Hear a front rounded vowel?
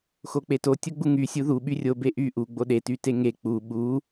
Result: yes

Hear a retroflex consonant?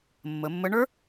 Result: yes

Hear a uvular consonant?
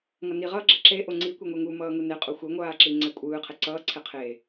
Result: yes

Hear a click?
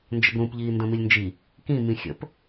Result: no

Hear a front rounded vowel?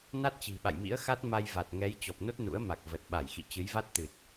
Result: no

